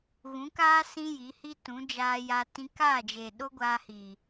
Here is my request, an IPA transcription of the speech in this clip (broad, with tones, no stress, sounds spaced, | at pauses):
ɣ ũ˨˦ k aː˦ s ĩ˦ j i˨˦ h i˦ t ũ˨˦ d͡ʒ aː˧ j a˧ t ĩ˧ k aː˦˨ d͡ʒ e˨ ɗ o˦ ɡʷ aː˧ h iː˨